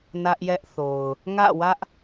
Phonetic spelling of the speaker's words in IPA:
n ä˦ ʔ j ɛ˦ ʔ θ o˨ ʊ̯ | ŋ ä̰˦˨ w ä˦ ʔ

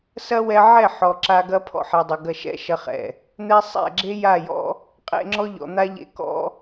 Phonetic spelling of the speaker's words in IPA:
s ɐ˦ w ɛ˧ ʕ ɛ˦˨ ħ ɔ˨ ǁ a˧ ɡ ɐ˦ pʰ ɔ̰˦ ħ ɛ˨ dˤ e˨ ɡ ɐ˧ ʃ ɛ̰˦ ʃ ɐ˧ χ ɛ̰˨ | n̪ ɛ˦ sˤ ɛ̰˦˨ ɡ͡ǁ e˦ j a˦˨ j ɔ̰˦ | qʼ ḛ˧ ŋ͡ǁ ɔ˦ ʎ ɔ̰˨ n̪ a˦ ʎ ḛ˧ k ɔ̰˦

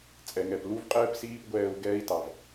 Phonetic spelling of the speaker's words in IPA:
t͡sʼ ɛ˨ ŋ ɛ˨ p l u˦ v qʼ ɛː˦ p s iː˦ p ɡʷ ɛː˧ u̯ ɡ ɛː˧ i̯ t ɑ˨ v

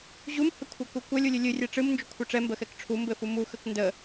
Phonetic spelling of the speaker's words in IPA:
ʑ u m h ɘ kʷʰ ɘ k u kʷ ə lʲ u lʲ ɨ lʲ ɨ rʲ ɛ ʈ͡ʂ ɨ m n d͡ʒ u kʷʰ ɘ ʈ͡ʂ ɛ m b ə x ɛ k ʈ͡ʂʰ u m b ɘ f u m u x ə k n d ə

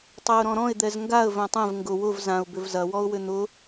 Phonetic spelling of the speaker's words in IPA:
tˤ ɛ ʊ̯ ɾ ɔ̃ ɾ ɔ̃ ɪ̯ d̪ ɛ z ŋ ɡ a ə̯ v œ̃ tˤ ɛ̃ v ŋ ɡ ʊ w ʊ v z ã ʊ̯ b ʏ v z ɐ w ɔ ʊ̯ w ʏ n̪ ʊ

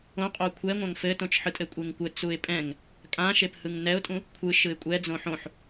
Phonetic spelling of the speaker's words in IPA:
õ qʼ o kʷʰ ɛ ŋʷ ã ŋ f ɘ t õ t͡ʃ ħ ɯ tʼ ɘ kʷʼ e ŋ kʷ ɘ t͡s u ɪ̯ pʼ ɛ̃ ŋ | kʼ ã ʃ e p h ɯ ŋ n ɛ ʊ̯ tʼ ũ | kʷʰ ɯ ʃ ɯ ɪ̯ kʷʼ ɛ d͡z õ ħ õ ħ

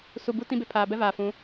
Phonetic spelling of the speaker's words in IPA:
s u˨ b u˦ t ĩ˦ b e˨ pʰ aː˨ b ɛ˦ v aː˨ f ũ˨˦

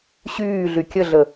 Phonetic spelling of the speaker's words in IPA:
ɕ yː ɮ y kʲ ə ɮ ə

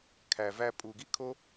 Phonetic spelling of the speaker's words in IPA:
kʰ æ˨ v æ˧ pʼ u˨ ɡ i˦ kʰ o˦

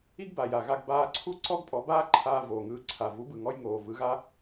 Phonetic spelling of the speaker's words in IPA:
i˥ ɡ b a˩ j a˩ ɣ a˧ ɡ b aː˧ ǀʰ u˥ ǀ ɔ˥ ɡ pʼ ɔ˩˥ b aː˥ ǃʰ aː˧ v oː˩ ŋ ɯː˧ ǀʰ a˩ v u˩˥ b ɯ˩ ŋ ɔ˧ j ŋ oː˩ v ɯ˩˥ ɣ a˥

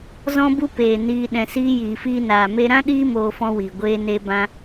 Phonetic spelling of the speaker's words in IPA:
z ɔ̃˦ b u˦ p eː˨ n iː˧ ɗ ɛ̃˨ s iː˧ j iː˨ f iː˧ n aː˨ m e˧ ɾ ã˦ ɗ iː˦ m oː˧ f ɔ̃˧ w iː˨ ɡʷ eː˧ n e˧ b ã˧

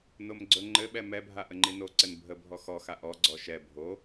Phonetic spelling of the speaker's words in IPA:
n o m ɡ͡ǀ ɵ ŋ͡ǃ ɘ ɓ ɛ m ɛ bʱ a ʔ ə ŋ͡ǃ i n o ǀ ɘ n bʱ ə bʱ ɔ x ɔ x a ʔ ɔ ɡ͡ǀ ɔ ʃ ɛ bʱ o

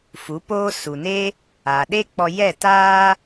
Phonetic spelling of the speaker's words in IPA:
f u˨˦ p oː˦ s u˨ n e˦ | aː˨ ɗ e˦ k͡p ɔ˧ j ɛ˦˨ t aː˦

